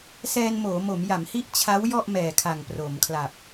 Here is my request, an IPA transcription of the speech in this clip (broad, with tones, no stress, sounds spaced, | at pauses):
s ɛː˧ n m oː˩˦ m o˩˦ m j a˩˦ m h i˥˩ ʔ t͡ɕʰ a˦˥ w j ɔ˥˩ ʔ m ɛː˨˩ kʰ a˨˩ ŋ p r oː˩˦ m kʰ l a˨˩ p̚